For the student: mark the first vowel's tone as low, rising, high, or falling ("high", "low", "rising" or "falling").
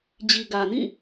low